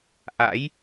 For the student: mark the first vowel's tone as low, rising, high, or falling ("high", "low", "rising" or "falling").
rising